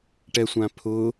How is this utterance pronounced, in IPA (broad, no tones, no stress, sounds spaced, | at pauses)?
ʈ ɛ sʷ ã pʰ ʊ